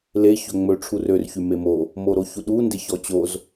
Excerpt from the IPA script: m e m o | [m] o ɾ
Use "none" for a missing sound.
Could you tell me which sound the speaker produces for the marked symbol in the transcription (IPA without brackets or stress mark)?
m